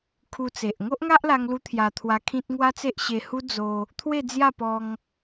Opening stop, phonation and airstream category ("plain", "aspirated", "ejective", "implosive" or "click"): aspirated